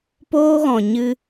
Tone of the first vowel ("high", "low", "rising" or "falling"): high